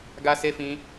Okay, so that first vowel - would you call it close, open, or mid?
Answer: open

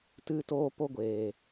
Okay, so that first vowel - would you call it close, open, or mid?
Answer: close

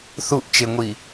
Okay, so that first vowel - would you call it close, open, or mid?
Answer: close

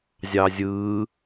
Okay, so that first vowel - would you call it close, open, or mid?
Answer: open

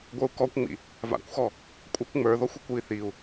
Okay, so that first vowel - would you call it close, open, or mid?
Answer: mid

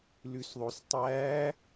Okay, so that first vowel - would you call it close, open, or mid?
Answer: close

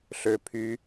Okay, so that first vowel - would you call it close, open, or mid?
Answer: mid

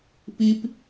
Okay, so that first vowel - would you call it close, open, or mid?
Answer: close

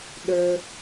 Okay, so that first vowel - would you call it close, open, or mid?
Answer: mid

